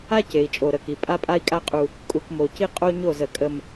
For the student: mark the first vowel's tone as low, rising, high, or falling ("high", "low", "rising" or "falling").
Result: high